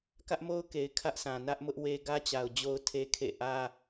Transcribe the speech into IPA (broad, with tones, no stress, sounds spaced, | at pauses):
k ä˦ ʔ m o˦ ʊ̯ k e˨ ɪ̯ kʰ ä˦ ʔ sʰ ã˨ n ä˦ ʔ m ʊ˦ ʔ w e˦ ɡ ä˦ t͡ɕ a˨ ʊ̯ d͡ʑ o˦ ʊ̯ tʰ e˦ kʰ ḛ˦˨ ʔ ä˦